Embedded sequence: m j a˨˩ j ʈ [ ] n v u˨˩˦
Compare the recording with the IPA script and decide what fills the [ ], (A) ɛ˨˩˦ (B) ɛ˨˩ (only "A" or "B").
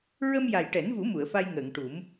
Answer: A